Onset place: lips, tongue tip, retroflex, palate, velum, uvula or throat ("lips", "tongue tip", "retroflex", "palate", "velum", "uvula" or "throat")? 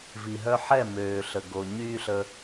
lips